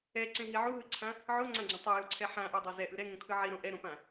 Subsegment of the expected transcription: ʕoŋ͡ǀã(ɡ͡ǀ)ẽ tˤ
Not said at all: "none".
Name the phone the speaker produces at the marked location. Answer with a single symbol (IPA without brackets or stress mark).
ɡ͡ǀ